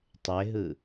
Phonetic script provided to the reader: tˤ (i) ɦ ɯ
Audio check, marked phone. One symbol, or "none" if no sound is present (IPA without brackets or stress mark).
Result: e